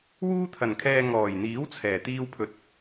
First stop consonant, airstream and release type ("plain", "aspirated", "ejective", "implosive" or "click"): aspirated